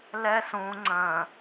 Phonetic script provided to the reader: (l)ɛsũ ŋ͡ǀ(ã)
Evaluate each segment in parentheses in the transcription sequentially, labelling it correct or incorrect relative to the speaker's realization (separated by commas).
correct, incorrect